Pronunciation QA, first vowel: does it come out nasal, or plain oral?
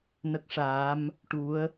oral